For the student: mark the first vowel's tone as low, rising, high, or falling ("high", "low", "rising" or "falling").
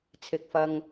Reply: low